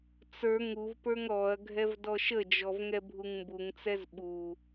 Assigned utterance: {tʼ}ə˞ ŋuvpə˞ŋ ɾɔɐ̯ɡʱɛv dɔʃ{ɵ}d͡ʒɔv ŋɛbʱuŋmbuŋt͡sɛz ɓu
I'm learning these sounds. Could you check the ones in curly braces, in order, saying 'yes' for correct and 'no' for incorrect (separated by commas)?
no, no